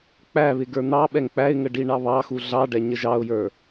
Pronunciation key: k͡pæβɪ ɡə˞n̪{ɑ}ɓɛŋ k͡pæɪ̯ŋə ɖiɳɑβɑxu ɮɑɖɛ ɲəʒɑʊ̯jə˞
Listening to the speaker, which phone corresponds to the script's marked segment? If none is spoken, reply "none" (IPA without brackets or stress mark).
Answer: ɑ